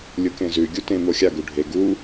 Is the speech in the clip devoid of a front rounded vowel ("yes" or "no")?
yes